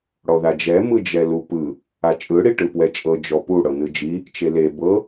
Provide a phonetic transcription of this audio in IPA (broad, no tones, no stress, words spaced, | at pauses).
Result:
ɽɔðad͡ʒɛ mɯd͡ʒɛlupɯ | at͡ʃʼɯ ɽiʈɯpwɛt͡ʃʼɤ d͡ʒɔpu ɽɤnɯd͡ʒi | t͡ʃele bɤ